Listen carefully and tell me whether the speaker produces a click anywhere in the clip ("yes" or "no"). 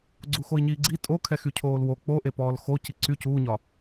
yes